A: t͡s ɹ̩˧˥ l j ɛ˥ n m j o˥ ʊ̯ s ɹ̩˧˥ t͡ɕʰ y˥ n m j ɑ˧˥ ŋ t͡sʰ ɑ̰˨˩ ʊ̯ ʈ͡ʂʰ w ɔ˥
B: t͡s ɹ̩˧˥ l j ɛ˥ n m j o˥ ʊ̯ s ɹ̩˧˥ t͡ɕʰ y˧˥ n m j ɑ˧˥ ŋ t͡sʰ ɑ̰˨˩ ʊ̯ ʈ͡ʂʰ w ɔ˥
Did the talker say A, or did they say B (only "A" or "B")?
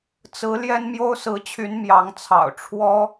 B